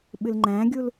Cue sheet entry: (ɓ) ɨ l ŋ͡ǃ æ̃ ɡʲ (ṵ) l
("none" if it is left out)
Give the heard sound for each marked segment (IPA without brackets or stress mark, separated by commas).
ɓ, u